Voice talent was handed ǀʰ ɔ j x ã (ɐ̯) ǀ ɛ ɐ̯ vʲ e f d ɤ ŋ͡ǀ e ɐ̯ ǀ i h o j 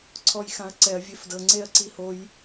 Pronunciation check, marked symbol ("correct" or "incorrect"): correct